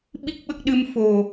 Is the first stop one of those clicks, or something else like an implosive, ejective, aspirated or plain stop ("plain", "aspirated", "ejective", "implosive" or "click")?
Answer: implosive